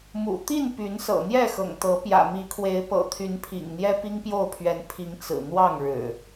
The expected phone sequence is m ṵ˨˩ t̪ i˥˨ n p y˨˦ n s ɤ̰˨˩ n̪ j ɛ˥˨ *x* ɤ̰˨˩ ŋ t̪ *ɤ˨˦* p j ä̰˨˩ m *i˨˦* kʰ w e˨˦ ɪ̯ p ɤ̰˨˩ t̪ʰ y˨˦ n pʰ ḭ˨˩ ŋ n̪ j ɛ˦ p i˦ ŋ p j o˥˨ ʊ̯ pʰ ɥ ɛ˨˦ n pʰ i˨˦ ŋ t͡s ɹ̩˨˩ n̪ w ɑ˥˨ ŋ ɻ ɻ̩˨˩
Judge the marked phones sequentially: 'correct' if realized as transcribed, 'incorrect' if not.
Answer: correct, correct, correct

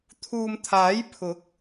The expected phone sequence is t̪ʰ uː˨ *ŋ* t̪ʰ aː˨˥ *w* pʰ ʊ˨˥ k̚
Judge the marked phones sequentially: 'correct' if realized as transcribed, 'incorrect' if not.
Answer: incorrect: m, incorrect: j

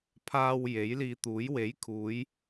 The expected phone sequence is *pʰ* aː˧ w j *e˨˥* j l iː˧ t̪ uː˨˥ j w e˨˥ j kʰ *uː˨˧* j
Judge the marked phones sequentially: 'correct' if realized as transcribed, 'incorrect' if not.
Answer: correct, correct, correct

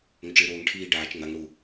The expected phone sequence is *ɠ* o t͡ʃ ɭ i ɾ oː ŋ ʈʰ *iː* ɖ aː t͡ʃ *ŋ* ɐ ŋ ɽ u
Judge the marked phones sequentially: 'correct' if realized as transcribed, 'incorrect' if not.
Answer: incorrect: ŋ, correct, correct

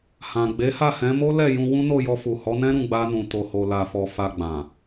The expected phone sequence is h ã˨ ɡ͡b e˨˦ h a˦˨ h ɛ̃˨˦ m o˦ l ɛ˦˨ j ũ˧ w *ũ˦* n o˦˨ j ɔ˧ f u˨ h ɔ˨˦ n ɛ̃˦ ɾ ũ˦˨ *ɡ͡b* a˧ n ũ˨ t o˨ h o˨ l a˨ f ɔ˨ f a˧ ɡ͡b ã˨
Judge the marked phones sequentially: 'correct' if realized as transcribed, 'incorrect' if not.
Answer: correct, correct

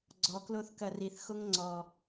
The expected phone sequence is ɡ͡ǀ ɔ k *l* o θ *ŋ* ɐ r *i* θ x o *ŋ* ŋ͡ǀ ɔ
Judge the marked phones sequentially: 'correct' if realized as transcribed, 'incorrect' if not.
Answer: correct, incorrect: k, correct, correct

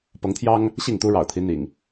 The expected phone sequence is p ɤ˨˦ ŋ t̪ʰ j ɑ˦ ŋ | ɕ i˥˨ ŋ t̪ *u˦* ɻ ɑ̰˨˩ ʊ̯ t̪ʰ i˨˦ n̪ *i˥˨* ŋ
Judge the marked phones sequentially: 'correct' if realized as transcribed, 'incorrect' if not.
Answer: correct, incorrect: ḭ˨˩

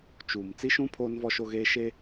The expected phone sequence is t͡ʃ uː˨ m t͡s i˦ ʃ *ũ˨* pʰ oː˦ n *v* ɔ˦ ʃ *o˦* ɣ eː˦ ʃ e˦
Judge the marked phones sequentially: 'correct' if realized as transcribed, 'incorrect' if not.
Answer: incorrect: ũ˦, correct, correct

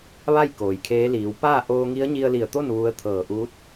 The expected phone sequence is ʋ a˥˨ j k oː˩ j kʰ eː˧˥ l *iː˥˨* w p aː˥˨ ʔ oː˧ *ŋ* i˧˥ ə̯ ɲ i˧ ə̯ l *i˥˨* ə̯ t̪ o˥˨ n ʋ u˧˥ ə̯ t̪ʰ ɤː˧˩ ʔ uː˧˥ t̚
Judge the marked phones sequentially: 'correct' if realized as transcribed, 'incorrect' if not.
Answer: incorrect: iː˩˧, correct, incorrect: i˧˩

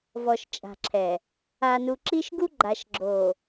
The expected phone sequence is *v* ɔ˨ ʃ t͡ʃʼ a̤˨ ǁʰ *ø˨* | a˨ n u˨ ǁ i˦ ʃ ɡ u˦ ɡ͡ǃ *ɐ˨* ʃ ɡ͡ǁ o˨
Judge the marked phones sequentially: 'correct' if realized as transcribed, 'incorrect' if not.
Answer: correct, incorrect: ɛ˨, incorrect: a˨

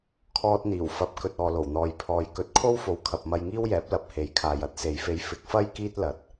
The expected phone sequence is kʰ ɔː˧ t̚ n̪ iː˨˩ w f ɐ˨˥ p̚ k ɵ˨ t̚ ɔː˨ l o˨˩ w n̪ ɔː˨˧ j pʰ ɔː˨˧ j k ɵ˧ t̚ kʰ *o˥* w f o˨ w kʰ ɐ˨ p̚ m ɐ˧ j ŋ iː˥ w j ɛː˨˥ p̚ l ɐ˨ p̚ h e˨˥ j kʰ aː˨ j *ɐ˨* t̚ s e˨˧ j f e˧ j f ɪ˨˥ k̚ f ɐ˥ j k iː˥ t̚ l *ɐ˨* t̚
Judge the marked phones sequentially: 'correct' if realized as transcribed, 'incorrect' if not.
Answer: correct, incorrect: ɐ˥, correct

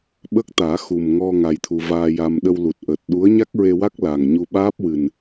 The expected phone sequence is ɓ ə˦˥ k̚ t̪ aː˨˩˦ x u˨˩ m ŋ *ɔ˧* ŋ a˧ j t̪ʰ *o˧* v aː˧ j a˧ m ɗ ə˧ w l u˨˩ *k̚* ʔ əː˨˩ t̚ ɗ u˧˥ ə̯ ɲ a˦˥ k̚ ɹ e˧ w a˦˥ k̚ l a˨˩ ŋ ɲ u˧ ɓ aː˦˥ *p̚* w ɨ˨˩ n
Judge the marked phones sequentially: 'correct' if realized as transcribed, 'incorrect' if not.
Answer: correct, incorrect: u˧, incorrect: t̚, correct

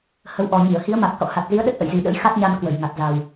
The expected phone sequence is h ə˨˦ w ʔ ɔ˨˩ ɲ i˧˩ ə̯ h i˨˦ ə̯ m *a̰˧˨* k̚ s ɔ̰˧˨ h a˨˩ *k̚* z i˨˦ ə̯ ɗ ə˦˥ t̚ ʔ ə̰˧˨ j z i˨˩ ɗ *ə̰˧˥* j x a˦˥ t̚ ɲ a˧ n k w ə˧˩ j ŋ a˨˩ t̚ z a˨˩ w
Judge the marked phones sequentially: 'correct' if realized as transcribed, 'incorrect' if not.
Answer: incorrect: a˨˩, incorrect: t̚, correct

